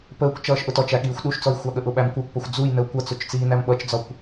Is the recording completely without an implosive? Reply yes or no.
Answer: no